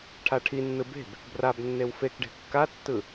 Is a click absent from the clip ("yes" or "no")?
yes